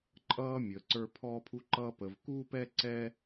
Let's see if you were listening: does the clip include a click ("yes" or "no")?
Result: yes